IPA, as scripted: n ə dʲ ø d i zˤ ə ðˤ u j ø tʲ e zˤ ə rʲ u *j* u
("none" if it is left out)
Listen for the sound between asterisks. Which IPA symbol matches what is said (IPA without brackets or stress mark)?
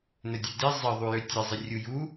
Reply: j